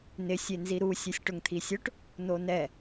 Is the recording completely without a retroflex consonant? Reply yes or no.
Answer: no